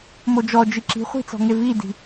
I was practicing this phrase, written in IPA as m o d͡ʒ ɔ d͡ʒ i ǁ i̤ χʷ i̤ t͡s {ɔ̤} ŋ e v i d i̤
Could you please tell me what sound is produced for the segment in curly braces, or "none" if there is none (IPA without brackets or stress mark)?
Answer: ɔ̤